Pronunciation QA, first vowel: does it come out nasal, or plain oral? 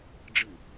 oral